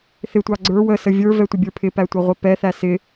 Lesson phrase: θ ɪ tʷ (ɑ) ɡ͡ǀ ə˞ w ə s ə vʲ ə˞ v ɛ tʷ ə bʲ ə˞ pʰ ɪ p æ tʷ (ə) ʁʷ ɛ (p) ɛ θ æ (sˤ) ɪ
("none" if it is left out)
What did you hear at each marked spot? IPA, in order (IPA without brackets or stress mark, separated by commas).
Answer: ɑ, ʌ, p, s